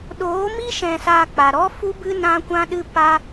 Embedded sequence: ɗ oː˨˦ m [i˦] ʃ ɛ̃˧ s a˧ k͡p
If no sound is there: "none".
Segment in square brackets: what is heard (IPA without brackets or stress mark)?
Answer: i˦